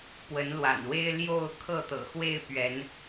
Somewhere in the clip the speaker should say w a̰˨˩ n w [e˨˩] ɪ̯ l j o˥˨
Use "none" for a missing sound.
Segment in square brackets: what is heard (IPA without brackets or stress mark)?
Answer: e˦